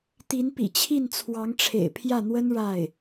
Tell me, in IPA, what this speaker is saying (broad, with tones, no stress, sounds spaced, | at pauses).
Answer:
t̪ i˧˥ n p ḭ˨˩ t͡ɕʰ i˥˩ n t͡sʰ w ɑ˧˥ ŋ ʈ͡ʂʰ ḛ˨˩ ɪ̯ pʰ j ä˥˩ n̪ w ə˥ n ɻ a˥˩ ɪ̯